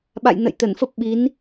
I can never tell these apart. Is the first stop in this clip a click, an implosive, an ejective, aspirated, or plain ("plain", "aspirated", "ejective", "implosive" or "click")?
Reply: implosive